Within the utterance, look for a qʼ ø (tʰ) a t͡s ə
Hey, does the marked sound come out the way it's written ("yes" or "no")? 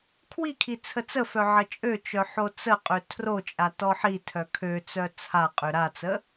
no